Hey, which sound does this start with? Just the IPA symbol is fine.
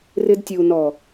r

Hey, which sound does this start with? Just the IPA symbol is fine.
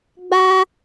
ɡ͡b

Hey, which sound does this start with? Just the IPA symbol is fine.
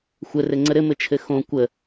xʷ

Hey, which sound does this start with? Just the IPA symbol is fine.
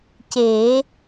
c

